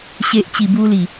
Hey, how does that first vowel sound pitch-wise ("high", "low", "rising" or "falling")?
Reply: low